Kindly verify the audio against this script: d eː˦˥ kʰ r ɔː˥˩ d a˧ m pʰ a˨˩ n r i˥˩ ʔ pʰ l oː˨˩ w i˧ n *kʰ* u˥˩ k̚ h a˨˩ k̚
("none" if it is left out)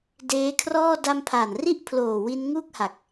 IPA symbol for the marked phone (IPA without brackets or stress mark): ŋ